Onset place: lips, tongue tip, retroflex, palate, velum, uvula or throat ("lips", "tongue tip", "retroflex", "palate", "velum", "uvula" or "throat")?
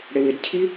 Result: retroflex